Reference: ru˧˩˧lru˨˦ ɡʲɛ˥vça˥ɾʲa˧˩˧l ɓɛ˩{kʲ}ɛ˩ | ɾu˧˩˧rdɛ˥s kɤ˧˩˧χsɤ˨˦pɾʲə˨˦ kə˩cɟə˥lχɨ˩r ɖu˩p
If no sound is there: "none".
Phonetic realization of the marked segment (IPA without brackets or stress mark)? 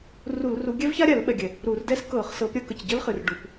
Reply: ɡʲ